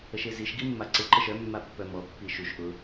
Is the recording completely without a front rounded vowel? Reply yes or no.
no